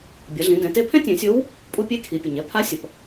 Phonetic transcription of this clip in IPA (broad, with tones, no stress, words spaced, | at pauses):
bʲʌ˩˧ɮĩ˩˧dɛ̃˩˧ te˥ pʰɛ̃˥tʲɛ̃˩˧sʲo˧˥w | pʼu˥pʲe˥kʰi˩˧pʲu˩ɲ ɛ˧˥pʰa˧˥ sʲʌ˩p